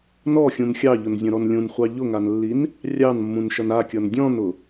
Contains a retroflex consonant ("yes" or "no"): no